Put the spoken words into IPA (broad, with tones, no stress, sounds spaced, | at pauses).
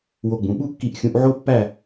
w o˧ ɡ͡b ũ˩˧ ɓ u˥ kː i˧ ʔ xʲ ũ˧ ʔ ʕ o˥ pː æ˥˧